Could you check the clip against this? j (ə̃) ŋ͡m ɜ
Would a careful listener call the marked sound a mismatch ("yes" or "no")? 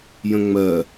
no